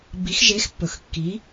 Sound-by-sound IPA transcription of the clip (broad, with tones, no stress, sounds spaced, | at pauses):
b i˨˥ x ʒ e˨˥ x pː ɵ˨˩ x kː i˨˥